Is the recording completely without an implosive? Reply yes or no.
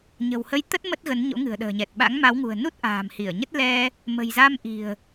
no